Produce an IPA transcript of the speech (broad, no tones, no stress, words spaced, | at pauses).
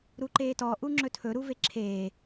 ɾuǃeːtɔ ʔuŋ͡ǁɵtʰɵ ɾuveǁʰeː